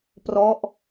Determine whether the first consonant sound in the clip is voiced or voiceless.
voiceless